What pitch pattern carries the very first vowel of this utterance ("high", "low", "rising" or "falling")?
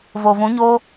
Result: low